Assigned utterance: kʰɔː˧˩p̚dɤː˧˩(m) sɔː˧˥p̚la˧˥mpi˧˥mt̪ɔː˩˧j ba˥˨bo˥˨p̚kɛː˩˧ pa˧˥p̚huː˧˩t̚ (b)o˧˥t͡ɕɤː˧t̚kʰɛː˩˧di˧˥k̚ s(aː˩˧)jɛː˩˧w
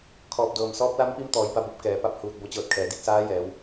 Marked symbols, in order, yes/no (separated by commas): yes, yes, no